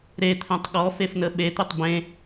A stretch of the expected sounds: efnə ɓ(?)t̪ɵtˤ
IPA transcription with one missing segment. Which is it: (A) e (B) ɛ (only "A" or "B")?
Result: A